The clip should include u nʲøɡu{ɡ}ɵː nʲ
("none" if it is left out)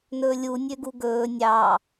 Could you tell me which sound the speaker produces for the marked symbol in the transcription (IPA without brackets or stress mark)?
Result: ɡ